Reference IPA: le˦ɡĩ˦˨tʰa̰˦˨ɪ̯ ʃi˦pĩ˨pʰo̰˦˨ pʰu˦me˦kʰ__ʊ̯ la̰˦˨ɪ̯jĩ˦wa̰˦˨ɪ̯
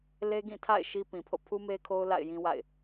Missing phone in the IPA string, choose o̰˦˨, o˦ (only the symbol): o˦